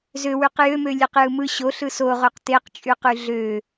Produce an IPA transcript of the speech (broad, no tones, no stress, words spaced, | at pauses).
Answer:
zøwyq jømølʲeqjɯ mɯ ɕoɬɯ soʁoq teqt͡ʃʼyqy ɮø